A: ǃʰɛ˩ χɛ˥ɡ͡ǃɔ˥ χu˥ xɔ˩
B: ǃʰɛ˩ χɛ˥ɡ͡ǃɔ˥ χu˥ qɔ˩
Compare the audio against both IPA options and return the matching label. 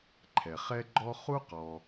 B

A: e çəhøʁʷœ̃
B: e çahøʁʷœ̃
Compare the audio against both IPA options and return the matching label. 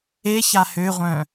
B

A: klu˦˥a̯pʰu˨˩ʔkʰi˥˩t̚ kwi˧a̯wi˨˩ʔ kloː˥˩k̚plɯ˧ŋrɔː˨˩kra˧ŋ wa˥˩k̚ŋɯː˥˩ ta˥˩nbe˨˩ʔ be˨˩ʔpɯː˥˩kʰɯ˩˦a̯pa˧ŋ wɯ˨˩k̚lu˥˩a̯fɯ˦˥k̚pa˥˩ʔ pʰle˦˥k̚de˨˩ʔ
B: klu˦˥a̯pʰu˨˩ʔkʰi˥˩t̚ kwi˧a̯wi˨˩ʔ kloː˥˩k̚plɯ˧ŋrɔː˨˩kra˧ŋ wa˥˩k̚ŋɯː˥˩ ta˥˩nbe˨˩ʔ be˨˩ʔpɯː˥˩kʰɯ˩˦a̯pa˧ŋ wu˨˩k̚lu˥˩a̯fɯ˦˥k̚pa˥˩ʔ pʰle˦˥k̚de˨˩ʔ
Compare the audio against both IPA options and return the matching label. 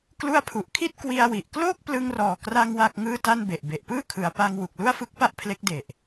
B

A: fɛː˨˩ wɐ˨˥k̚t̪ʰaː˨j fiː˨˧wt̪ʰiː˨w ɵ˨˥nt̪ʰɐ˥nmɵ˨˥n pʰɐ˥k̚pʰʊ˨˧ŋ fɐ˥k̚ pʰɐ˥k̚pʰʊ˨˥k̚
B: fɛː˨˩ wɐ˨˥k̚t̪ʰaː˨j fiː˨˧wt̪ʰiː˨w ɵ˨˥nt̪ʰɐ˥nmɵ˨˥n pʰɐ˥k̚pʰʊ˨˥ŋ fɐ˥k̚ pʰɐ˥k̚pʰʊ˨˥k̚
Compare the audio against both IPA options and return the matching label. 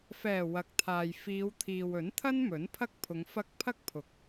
A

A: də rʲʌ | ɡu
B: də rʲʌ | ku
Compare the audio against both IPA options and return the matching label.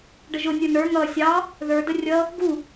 A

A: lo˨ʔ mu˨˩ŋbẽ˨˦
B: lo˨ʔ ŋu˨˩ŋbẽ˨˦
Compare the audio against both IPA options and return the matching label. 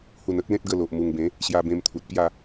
A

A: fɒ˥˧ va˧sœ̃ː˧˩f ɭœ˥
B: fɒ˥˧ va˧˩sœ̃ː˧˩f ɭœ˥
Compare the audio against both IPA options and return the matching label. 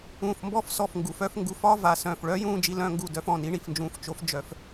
B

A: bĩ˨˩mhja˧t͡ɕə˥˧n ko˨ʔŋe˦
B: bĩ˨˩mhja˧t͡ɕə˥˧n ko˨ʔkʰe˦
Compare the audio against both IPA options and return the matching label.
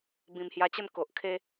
B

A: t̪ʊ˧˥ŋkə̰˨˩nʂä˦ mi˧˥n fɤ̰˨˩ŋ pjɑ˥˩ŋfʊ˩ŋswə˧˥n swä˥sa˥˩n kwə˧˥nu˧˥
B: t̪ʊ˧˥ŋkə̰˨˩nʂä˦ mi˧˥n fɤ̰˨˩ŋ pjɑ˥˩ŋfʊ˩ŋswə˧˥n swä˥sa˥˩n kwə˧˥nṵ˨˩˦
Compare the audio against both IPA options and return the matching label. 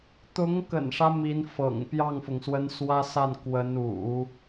B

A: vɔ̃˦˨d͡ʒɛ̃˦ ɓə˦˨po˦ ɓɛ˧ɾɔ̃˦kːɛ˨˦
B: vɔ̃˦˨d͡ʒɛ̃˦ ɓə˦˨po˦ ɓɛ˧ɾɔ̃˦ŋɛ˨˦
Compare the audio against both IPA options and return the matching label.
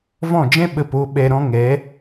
B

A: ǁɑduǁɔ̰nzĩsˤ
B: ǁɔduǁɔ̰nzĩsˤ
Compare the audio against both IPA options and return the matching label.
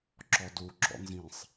B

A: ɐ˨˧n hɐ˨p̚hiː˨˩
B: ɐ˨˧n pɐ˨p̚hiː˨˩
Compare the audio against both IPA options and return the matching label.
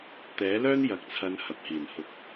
A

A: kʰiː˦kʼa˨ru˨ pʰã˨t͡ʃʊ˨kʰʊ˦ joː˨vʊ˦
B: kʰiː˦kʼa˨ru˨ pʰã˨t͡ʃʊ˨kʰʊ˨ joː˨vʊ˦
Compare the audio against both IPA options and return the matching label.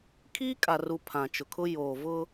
A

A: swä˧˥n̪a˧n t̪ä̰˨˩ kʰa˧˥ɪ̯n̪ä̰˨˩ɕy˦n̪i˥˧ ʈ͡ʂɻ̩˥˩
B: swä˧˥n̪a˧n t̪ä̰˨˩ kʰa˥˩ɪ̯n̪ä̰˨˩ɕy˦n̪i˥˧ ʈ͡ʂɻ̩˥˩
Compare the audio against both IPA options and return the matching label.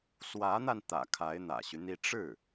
A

